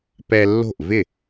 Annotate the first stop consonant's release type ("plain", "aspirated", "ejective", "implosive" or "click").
plain